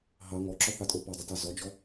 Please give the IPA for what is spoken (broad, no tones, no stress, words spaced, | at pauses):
ɦɑ ŋɔǁɔθɑtʼo pɐdˤətɑ zɔd͡ʒɔ